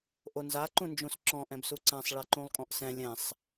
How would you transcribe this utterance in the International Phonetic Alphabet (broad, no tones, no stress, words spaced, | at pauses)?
ʔonza ǃũnd͡ʒũsǁɔ̃ ʔɛ̃bsuǀãsˤ ɭɛǃũlˠkʼɔ̃ʔsɛ̃ lʲɛ̃sˤ